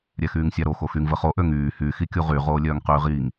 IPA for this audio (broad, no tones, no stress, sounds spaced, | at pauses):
ɾʲ ɛ x yː ŋ sʲ a ɾ o x o x y ŋ v ə χ o ʔ ø ŋ yː h y x i kʲ u ʁ y ʁ oː lʲ œː ŋ q yː ʁ iː ŋ